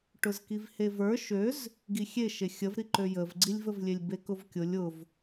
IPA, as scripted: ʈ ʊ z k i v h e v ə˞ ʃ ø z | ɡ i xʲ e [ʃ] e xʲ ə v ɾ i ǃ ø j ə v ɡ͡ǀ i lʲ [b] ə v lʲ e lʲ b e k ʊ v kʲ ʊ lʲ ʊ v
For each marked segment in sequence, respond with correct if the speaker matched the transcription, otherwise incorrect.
correct, incorrect

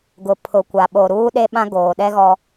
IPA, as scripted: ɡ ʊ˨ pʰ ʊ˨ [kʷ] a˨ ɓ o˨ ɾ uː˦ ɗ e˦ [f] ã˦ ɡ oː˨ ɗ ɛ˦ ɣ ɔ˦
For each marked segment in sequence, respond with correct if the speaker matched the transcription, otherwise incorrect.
correct, incorrect

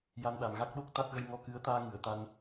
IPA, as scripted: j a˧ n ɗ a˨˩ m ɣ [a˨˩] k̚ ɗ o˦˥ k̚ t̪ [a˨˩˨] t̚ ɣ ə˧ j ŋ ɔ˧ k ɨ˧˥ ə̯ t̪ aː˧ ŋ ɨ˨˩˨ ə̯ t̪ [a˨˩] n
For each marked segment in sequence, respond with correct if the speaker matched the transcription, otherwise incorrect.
incorrect, incorrect, incorrect

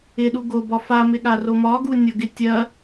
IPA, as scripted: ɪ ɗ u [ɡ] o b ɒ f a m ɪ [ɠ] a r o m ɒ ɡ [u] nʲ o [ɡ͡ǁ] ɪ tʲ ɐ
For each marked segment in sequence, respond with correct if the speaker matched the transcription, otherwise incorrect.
correct, correct, correct, incorrect

